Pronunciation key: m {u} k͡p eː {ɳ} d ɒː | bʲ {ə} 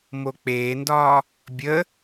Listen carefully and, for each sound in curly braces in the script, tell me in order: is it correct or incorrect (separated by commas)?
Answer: incorrect, incorrect, correct